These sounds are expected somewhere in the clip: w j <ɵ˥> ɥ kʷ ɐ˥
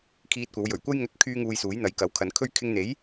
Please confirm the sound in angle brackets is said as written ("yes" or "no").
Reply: no